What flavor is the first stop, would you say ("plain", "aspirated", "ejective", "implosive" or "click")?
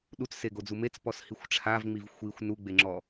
implosive